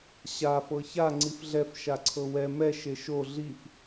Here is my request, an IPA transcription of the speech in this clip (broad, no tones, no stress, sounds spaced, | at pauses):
ɕ a f ɤ ç a ŋ͡ǀ i f ɮ ɛ f ʃ a ǀʰ ɤ w ɛ m ɛ ʃ e ʃ o ɮ i f